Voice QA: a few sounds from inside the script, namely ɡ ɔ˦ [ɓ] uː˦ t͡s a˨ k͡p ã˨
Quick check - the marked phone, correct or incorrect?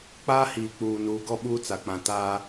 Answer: correct